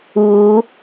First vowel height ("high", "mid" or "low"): high